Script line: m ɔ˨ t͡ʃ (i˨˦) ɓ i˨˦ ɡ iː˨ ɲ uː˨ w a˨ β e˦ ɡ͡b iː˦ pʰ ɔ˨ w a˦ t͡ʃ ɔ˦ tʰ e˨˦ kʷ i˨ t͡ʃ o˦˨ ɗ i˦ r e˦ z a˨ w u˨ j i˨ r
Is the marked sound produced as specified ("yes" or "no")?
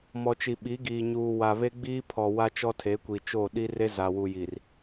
no